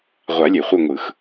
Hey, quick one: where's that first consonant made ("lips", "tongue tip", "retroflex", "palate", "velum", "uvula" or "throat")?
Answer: uvula